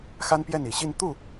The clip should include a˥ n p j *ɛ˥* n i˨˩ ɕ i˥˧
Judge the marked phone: incorrect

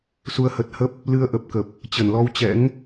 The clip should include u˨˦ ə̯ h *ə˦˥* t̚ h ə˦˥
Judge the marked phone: incorrect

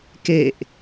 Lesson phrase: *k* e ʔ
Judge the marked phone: correct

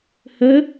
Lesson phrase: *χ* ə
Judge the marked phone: incorrect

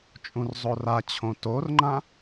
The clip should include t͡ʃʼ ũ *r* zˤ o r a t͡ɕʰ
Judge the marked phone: correct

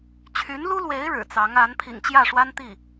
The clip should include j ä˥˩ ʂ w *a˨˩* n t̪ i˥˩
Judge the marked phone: incorrect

